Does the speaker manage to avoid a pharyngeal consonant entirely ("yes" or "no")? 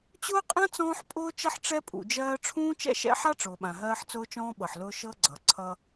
no